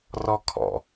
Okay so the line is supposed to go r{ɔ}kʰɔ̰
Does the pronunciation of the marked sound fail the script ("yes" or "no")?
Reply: no